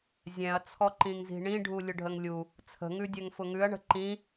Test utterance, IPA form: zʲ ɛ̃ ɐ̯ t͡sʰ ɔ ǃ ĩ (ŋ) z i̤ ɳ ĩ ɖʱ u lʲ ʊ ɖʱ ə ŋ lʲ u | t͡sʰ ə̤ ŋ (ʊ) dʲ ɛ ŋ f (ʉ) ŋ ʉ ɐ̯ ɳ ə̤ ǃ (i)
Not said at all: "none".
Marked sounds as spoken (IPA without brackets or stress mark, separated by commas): ŋ, ʉ, ʊ, ĩ